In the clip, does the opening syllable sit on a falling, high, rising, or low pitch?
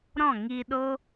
falling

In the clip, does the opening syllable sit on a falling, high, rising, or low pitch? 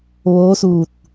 rising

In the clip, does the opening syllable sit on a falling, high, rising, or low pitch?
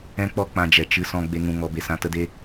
high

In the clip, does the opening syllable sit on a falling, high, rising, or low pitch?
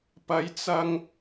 rising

